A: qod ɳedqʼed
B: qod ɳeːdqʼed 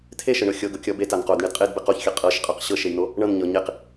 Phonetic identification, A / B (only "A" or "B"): A